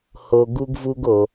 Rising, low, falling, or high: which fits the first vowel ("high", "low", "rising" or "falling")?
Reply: low